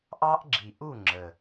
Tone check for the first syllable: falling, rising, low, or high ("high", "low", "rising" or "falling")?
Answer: high